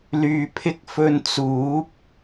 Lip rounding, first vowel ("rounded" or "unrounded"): rounded